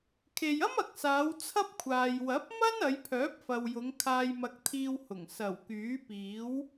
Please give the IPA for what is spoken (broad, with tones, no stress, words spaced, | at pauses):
kʰe˨jɐ˥mɐ˨k̚saː˨˧w t͡sʰɐ˥p̚kʷʰaː˨j wɐ˨˥p̚mɐ˥n ɐ˨˧jpʰœː˨˥p̚fɐ˨wjʊ˨˧ŋ kʰaː˧jmɐ˧k̚t̪ʰiː˧whʊ˨˩ŋ sɐ˨˩wkyː˨˥piː˨˥w